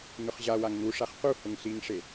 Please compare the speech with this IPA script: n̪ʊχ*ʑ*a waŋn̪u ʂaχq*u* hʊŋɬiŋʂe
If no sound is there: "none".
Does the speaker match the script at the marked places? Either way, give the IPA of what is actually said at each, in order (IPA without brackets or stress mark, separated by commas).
ʑ, u